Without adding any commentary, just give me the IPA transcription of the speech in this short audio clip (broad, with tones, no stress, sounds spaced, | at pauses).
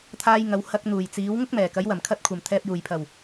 t̪ʰ aː˧ j ŋ ɐ˨˧ w h ɐ˧ k̚ n̪ uː˨˩ j t͡s iː˨˥ w ŋ ʊ˥ k̚ m ɛː˨˩ k ɐ˨˥ j w ɐ˨˩ m kʰ ɐ˧ t̚ kʷʰ ɐ˨˩ m t̪ʰ ɛː˨ p̚ j uː˨˩ j pʰ ɐ˨˩ w